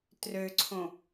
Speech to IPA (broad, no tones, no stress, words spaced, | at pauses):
trøǀʰõ